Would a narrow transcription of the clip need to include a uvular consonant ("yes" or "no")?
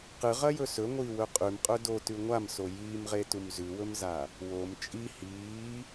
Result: yes